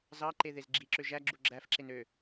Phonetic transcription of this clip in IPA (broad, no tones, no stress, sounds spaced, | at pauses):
z ɑ ǃ e ð e z ɡ͡ǁ i ǁ ø ʒ æ ɡ͡ǁ u ɡ͡ǁ æ f ǁ e n ø